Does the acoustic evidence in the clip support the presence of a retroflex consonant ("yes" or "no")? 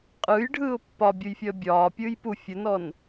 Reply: yes